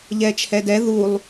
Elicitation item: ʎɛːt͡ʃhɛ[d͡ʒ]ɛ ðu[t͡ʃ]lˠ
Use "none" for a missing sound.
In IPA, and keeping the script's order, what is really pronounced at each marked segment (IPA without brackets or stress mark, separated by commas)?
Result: d, none